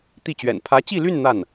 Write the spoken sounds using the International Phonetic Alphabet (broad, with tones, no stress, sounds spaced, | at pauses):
t̪ i˥˩ t͡ɕ ɥ ɛ̰˨˩ n pʰ ä˧˥ t͡ɕ i˥˧ l y˥˧ n n̪ a˥˩ n